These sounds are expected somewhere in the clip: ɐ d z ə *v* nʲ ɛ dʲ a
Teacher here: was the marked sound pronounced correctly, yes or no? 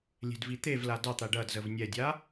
yes